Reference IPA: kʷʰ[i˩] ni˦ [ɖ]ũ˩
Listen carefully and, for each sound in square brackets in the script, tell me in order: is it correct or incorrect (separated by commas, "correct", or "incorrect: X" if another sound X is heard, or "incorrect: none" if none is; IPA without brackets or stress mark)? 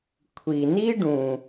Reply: correct, correct